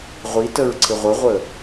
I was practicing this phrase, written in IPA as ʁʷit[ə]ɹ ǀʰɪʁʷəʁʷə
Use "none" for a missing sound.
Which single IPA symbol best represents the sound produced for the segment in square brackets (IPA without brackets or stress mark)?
ə